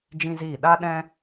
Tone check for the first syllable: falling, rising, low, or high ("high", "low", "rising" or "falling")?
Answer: high